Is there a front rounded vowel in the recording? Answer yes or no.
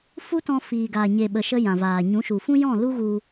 no